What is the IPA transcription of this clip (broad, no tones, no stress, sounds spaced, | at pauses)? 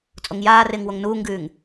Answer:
t͡sʼ o ŋ j aː r ɪː ŋ w o ŋ n uː ŋ ɡ ʉː ŋ